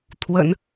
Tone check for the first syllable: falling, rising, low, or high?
low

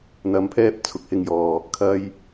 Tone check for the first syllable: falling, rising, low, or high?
low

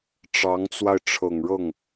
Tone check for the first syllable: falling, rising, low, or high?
rising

